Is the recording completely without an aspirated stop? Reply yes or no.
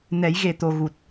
yes